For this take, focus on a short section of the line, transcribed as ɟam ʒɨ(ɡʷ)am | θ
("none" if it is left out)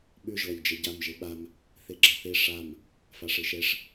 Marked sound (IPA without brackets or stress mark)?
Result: ɓ